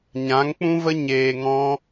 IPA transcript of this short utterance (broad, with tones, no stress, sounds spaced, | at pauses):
ɲ ã˨˦ ŋ k͡p ũ˦ v ə˦ ɲ eː˧ ŋ ɔ̃˦